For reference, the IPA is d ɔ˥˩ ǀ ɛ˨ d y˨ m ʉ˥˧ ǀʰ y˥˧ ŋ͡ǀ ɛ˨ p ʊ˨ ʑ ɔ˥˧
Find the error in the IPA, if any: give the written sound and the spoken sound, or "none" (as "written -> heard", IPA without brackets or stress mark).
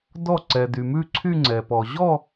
ʊ˨ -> ɔ˨